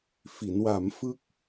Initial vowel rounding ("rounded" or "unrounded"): unrounded